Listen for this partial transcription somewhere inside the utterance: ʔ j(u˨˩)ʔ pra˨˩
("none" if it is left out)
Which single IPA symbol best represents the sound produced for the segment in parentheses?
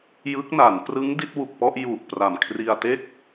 u˨˩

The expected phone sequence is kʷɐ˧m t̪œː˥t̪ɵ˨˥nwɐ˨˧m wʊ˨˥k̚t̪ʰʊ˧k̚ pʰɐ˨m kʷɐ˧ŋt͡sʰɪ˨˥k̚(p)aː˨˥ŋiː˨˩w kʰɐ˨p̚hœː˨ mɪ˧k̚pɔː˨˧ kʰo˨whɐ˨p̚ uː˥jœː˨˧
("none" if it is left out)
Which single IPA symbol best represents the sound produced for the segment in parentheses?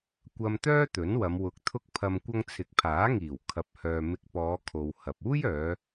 pʰ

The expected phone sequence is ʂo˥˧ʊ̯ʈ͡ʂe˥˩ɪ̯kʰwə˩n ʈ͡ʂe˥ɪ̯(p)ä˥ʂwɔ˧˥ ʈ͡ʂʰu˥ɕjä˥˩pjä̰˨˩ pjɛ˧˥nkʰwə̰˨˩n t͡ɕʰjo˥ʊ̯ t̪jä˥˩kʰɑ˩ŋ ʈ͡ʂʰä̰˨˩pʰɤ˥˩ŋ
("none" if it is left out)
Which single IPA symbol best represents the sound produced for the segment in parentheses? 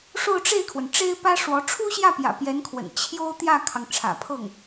p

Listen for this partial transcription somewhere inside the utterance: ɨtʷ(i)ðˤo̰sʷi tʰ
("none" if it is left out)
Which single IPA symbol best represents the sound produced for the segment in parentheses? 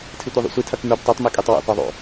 i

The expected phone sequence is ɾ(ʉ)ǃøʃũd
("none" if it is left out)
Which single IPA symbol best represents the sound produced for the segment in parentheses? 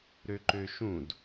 ø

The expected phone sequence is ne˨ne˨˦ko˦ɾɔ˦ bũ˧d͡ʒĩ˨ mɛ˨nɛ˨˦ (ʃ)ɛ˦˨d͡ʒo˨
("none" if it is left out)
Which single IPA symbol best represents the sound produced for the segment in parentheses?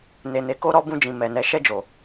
ʃ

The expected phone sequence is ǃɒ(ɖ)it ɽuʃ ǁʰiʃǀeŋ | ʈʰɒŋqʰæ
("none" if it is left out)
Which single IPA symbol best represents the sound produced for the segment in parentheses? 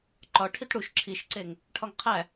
ʈʰ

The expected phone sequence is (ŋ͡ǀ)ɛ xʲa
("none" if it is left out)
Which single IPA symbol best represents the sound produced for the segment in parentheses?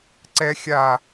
ǀ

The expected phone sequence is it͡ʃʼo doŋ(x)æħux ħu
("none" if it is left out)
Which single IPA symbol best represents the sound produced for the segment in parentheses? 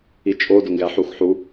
ɡ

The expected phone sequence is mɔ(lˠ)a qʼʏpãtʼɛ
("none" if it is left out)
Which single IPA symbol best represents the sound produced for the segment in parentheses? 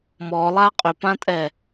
lˠ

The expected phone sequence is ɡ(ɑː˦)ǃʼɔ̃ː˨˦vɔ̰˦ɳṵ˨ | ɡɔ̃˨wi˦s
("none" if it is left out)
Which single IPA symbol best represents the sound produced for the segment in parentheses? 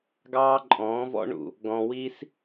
ɑː˦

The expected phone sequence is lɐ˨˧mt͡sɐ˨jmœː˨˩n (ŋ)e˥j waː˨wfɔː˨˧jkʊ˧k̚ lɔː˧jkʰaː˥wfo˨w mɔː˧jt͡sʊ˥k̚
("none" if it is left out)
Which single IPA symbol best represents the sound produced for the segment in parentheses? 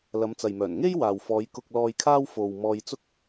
ŋ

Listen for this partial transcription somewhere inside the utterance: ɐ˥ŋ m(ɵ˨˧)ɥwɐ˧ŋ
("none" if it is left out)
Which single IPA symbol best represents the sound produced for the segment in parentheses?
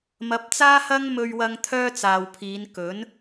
ɵ˧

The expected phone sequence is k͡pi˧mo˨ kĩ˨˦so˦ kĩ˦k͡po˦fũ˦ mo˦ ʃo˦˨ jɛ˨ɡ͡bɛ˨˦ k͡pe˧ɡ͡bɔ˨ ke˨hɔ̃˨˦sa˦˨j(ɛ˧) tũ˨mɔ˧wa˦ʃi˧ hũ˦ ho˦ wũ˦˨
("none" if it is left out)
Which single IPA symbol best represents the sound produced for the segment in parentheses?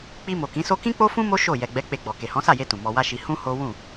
e˧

